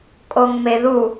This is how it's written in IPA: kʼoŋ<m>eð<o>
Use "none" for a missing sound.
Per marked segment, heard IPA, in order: m, u

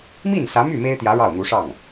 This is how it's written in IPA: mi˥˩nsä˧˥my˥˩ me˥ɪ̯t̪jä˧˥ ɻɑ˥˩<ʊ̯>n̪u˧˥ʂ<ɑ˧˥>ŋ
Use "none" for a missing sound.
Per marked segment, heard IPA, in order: ʊ̯, ɑ˥˩

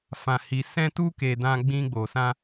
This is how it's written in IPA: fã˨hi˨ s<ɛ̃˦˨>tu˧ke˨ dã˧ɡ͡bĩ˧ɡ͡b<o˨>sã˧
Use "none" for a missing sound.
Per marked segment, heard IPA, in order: ɛ̃˧, o˨

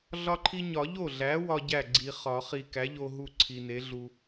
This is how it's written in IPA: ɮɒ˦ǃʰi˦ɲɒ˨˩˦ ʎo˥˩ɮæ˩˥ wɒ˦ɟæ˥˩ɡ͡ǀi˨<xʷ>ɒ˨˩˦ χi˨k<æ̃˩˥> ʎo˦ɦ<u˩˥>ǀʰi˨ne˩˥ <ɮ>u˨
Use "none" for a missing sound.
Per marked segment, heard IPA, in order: χ, æ˩˥, u˥˩, ɮ

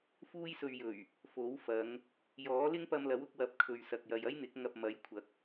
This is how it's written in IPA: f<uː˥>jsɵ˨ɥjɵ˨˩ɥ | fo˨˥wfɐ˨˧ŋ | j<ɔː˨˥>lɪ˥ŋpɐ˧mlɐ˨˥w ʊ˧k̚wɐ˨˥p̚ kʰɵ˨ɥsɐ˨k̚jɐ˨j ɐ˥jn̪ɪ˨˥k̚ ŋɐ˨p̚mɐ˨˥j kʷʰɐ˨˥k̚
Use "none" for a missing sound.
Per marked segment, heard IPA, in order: uː˧, ɔː˨˥

